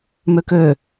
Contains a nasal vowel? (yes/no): no